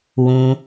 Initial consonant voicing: voiced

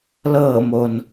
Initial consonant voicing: voiced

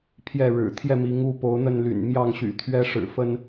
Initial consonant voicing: voiceless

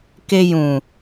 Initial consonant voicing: voiceless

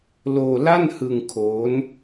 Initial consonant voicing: voiced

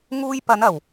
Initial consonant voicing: voiced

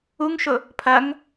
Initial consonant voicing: voiced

